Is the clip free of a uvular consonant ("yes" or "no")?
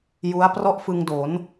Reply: yes